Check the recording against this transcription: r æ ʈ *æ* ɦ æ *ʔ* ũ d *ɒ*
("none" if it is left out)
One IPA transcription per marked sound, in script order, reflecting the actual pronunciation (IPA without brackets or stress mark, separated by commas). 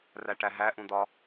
æ, ʔ, ɒ